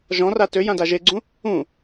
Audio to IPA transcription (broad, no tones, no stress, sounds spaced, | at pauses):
ʒ ɔ̃ r a t ø j ã d a ʒ e ɡ͡ǀ ũ | ũ